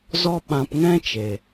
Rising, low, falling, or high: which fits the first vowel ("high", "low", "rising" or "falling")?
high